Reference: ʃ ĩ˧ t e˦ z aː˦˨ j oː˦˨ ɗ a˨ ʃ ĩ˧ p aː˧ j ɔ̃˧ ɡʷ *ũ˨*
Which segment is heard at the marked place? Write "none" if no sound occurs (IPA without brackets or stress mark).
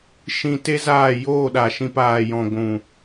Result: ũ˨